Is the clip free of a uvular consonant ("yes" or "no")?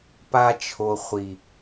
no